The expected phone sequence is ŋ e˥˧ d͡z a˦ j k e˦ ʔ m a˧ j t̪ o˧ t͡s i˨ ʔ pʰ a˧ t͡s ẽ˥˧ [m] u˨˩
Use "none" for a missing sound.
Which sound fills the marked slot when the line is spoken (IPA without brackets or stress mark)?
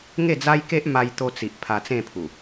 pʰ